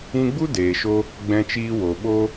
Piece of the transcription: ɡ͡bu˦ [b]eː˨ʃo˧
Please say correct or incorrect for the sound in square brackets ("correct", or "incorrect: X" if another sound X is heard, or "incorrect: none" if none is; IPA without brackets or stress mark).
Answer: incorrect: d